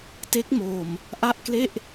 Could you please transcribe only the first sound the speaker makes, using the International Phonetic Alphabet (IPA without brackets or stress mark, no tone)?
t